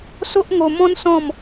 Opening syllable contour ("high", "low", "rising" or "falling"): high